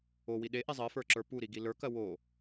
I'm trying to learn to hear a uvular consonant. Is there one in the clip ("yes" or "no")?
no